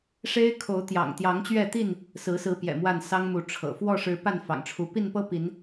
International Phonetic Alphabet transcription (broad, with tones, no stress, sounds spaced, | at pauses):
ʂ e˦ ɪ̯ kʰ o˨˦ ʊ̯ t̪ j ɑ̰˨˩ ŋ t̪ j ɑ˨˦ ŋ t͡ɕ ɥ ɛ˥˨ t̪ i˥˨ n | s ɹ̩˨˦ s ɹ̩˨˦ p j ɛ̰˨˩ m w a˥˨ n s ɑ˦ ŋ m u˨˦ ʈ͡ʂʰ ɤ̰˨˩ f w ɔ˥˨ ʂ ɻ̩˨˦ p a˥˨ n f ɑ̰˨˩ ŋ ʈ͡ʂʰ u˨˦ p i˥˨ n p ɤ˦ p i˨˦ n